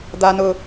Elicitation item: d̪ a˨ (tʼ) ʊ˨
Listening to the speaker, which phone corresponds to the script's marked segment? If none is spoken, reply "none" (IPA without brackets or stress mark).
n